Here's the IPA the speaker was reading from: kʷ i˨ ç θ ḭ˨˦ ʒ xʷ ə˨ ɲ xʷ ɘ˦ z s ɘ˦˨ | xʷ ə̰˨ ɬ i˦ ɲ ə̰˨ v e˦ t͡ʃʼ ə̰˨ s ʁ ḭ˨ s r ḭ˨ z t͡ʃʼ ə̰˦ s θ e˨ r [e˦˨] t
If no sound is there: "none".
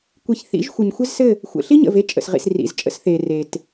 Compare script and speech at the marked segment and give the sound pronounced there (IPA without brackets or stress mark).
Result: e˨